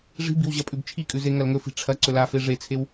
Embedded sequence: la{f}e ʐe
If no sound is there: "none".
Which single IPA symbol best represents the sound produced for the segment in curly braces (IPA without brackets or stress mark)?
f